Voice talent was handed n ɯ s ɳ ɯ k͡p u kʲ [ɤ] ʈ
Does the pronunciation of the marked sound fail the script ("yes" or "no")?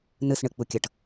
no